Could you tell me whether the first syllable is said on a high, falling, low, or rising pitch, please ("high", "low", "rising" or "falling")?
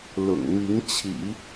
low